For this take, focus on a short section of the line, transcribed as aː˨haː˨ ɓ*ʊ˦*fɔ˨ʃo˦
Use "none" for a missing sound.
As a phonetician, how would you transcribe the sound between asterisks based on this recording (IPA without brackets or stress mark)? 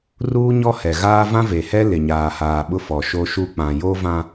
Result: ʊ˦